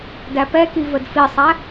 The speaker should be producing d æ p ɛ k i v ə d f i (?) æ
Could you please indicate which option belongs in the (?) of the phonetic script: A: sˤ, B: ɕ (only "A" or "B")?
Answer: A